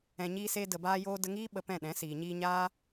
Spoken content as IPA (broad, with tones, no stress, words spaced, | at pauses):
ɛ̃˧ɲiː˦ se˦də˧baː˦joː˦ də˧ŋiː˦ ɓə˧pɛ̃˦˨ɗɛ̃˨˦ siː˨ɲiː˧ɲaː˦